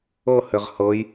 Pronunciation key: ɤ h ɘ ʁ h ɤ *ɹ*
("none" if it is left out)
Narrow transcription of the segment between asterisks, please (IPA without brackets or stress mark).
j